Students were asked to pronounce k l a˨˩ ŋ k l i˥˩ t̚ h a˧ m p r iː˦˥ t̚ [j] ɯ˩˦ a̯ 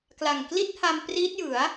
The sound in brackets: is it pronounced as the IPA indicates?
yes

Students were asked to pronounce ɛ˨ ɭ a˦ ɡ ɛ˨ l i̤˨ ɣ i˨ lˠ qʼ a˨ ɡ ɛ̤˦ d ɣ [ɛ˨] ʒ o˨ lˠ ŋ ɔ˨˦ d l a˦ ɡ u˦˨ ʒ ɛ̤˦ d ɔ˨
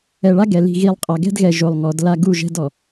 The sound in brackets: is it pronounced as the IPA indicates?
yes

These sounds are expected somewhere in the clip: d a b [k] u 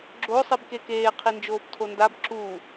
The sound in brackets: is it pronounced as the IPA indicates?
no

